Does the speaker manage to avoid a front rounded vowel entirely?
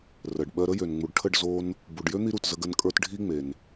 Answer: no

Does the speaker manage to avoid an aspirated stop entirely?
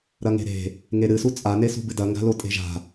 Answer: yes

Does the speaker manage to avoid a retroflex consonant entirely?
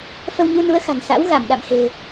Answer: yes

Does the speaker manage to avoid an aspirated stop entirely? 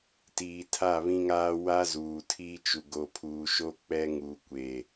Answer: no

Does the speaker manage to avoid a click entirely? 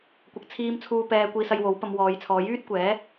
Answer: yes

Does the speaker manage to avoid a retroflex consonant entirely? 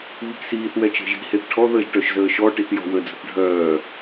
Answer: no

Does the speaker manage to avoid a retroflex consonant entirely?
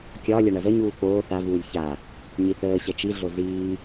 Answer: no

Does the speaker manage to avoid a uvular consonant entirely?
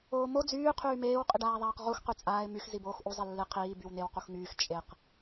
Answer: no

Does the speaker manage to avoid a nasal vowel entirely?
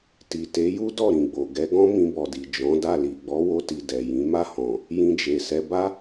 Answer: no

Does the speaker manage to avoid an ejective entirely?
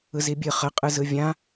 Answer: no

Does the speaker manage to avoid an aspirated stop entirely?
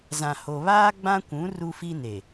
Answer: yes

